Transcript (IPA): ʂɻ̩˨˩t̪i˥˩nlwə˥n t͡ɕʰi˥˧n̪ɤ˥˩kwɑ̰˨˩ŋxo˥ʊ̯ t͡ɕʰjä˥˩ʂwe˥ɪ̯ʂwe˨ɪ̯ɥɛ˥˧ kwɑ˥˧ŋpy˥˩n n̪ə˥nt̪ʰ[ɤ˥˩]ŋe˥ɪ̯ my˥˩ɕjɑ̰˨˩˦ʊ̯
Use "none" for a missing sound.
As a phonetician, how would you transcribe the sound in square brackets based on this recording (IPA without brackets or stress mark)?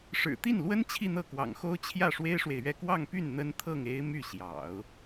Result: ɤ˥˩